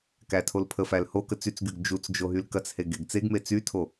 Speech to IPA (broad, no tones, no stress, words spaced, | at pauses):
kætʰolpʰəfæl hokə t͡syt͡sɡyɡ d͡ʒut͡sd͡ʒo ɦylkɐt͡she ɡeɡt͡seɡme t͡sytʰo